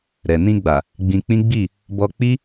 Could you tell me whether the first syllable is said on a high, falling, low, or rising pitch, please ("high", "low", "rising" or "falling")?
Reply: low